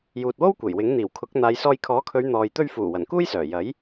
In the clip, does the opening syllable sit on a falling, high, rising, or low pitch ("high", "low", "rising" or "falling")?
low